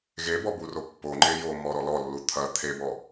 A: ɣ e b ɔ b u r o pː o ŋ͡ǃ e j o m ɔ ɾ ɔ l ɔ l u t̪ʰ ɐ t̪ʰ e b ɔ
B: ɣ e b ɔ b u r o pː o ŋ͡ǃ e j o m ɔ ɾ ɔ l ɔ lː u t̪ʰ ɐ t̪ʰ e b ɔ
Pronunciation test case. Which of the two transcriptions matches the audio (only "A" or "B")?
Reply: B